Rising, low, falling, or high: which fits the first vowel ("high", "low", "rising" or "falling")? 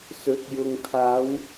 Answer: rising